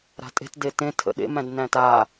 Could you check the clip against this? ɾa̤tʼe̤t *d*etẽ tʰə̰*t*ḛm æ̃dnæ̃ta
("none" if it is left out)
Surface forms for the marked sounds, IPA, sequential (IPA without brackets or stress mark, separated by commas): d, ɗ